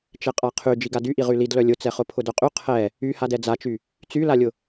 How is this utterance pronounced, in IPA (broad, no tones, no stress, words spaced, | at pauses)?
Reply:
t͡ʃɛqʼaqʰy d͡ʒiɡadyʔi ʁylidlœ lʲʊt͡sɛχʊ pʰʊdœqʼy qʰɛ | yhadɛ d͡zat͡ʃy | t͡sylalʲʊ